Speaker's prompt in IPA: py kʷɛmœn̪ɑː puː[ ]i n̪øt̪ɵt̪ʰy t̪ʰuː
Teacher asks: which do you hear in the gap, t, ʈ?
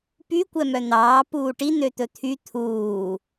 ʈ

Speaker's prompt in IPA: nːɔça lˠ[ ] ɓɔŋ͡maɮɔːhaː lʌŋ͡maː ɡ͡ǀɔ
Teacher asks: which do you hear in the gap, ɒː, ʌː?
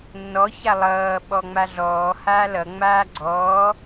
ʌː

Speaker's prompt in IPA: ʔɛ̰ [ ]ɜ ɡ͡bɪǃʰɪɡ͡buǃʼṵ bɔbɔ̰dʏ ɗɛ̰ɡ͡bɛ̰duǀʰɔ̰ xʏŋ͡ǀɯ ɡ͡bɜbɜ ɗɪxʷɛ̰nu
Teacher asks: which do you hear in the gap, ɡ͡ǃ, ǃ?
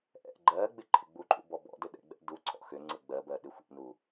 ɡ͡ǃ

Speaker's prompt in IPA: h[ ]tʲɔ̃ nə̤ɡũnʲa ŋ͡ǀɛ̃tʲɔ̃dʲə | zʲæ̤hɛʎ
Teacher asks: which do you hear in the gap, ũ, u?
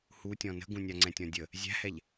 u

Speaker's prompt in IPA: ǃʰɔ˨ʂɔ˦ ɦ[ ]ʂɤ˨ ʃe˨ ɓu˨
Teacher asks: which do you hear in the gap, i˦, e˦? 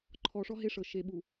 e˦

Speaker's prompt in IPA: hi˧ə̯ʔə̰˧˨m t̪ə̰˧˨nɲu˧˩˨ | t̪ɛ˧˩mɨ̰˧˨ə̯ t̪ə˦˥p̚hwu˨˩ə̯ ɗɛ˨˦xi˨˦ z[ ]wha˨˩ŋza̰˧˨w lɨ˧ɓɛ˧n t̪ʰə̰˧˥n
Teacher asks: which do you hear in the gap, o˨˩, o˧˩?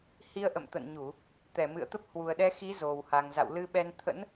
o˨˩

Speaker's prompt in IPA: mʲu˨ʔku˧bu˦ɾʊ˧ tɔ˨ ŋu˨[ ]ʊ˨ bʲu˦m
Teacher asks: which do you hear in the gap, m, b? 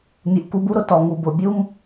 b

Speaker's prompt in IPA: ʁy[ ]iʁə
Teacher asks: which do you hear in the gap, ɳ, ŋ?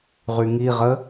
ŋ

